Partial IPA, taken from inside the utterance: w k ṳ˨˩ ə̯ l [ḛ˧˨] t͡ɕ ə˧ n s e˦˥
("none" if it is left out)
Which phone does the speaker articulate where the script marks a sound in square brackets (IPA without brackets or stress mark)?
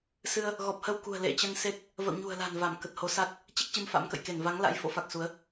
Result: ḛ˧˨